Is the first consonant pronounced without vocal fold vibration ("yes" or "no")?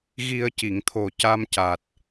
no